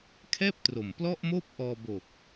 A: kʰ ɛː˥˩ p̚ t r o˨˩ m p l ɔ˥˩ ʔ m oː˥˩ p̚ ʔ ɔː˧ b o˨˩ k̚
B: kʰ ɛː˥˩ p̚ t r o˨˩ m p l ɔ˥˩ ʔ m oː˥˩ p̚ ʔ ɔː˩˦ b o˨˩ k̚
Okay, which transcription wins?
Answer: A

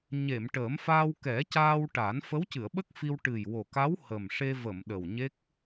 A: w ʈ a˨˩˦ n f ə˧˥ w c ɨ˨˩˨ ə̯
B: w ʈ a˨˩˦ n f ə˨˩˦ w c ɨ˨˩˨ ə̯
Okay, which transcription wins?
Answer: A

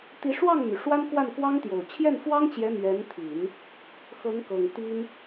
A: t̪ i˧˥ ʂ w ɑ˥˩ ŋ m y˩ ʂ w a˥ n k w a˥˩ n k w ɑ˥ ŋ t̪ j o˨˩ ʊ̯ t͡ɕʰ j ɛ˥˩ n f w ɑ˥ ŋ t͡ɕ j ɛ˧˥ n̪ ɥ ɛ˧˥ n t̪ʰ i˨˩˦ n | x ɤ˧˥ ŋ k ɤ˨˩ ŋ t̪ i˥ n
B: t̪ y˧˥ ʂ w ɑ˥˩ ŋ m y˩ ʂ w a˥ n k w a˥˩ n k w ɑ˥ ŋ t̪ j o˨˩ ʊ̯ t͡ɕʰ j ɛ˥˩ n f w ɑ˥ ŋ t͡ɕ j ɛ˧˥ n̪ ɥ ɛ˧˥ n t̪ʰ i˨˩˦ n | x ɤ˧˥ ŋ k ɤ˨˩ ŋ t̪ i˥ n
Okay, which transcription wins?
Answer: A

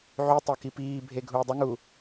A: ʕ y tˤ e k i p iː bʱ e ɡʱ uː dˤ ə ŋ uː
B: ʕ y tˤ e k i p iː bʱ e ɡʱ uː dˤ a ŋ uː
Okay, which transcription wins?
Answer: A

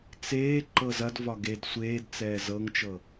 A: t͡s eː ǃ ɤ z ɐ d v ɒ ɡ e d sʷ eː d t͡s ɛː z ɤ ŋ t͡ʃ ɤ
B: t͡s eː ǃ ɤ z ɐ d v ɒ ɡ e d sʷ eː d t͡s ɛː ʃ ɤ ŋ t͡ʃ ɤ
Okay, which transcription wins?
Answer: A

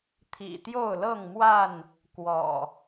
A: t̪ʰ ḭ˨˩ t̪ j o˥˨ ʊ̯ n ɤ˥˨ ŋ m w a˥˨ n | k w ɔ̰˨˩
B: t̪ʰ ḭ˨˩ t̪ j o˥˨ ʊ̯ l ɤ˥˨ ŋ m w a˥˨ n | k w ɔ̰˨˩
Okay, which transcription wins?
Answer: B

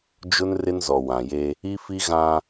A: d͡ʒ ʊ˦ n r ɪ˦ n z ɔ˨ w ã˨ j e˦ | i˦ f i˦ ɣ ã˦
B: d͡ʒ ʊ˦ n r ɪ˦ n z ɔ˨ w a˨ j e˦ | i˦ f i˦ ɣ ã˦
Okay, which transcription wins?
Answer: A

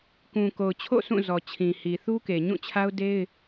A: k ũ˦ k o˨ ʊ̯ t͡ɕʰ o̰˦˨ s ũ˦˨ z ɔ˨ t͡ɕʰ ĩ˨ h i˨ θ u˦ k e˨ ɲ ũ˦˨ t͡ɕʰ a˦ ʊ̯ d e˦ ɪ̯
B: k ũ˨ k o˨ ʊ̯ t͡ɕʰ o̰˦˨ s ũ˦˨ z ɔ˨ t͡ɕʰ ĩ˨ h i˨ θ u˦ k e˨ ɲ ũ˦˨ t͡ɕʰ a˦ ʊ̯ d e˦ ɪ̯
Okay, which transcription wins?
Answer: B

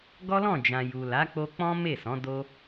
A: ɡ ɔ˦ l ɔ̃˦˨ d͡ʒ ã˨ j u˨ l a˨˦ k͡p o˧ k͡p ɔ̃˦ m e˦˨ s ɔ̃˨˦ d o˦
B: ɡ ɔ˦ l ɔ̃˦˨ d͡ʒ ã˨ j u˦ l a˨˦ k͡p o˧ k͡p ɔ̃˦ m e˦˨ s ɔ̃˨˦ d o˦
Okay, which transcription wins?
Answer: A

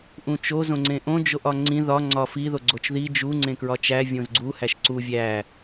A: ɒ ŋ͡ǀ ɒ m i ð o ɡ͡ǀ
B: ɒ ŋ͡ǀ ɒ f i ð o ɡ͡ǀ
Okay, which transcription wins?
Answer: B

